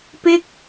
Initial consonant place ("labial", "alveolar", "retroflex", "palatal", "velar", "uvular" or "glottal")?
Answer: labial